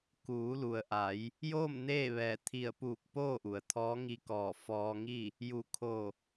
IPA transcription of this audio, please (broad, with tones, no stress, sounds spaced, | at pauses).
k uː˩˧ l u˩ ə̯ ʔ a˩˧ j | j oː˥˨ m n eː˥˨ ʋ ɛː˧˩ t̪ʰ i˧˩ ə̯ p uː˧˩ k̚ p oː˥˨ ʔ u˩ ə̯ t̪ʰ ɔː˧˥ ŋ i˧ k ɔː˧˩ f ɔː˧ ŋ i˥˨ | j u˧˩ kʰ o˧˩